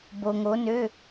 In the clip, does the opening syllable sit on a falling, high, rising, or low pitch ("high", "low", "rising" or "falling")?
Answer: low